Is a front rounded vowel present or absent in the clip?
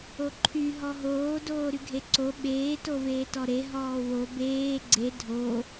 present